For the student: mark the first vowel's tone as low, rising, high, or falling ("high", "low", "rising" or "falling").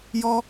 high